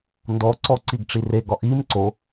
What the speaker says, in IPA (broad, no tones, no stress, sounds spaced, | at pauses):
n d ɔ ǀ ɔ ǀ i ɡ ʈ͡ʂ i r e ɡ ɒ ʔ i m ǀ o